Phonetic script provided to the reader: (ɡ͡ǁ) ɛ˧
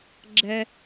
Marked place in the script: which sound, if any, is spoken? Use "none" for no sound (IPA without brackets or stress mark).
ɡ͡ǁ